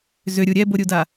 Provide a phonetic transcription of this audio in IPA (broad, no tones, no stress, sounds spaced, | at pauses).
z ʏ ɾʲ u ɾʲ ɛ b o ɾʲ u d a